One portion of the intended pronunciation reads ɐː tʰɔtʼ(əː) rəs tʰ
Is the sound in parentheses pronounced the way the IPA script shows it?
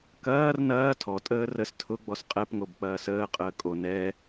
yes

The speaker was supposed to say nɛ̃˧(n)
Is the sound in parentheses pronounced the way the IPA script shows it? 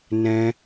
no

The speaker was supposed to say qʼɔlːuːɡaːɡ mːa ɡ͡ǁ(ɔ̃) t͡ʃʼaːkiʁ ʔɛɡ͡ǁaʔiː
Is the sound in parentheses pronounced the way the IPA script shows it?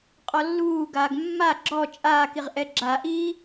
no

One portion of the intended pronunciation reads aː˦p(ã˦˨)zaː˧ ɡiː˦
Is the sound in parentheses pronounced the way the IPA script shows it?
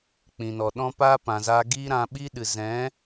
no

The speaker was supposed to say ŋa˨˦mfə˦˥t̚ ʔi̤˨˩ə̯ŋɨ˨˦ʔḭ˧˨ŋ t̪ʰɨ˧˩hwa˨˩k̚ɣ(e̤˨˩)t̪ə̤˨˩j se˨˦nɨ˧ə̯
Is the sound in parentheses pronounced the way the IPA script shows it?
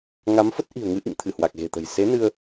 yes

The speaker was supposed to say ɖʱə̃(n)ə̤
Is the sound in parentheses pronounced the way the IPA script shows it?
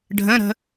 no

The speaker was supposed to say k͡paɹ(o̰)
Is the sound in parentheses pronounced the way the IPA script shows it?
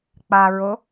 no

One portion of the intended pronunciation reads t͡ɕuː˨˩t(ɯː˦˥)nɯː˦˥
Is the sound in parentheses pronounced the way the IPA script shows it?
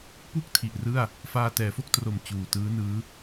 yes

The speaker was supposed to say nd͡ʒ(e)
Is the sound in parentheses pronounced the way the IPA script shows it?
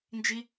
no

